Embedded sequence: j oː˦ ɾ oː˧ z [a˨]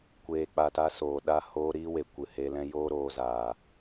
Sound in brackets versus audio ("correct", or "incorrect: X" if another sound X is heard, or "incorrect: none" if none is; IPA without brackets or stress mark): incorrect: aː˨